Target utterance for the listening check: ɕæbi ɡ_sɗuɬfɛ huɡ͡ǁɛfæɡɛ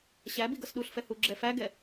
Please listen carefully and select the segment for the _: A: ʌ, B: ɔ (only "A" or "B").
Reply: A